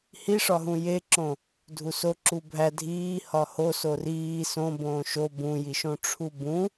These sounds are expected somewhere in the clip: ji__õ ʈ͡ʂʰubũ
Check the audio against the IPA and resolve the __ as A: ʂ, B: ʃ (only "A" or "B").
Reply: B